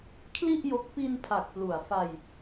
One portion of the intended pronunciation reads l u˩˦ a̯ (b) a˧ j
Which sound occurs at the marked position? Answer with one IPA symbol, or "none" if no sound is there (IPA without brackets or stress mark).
f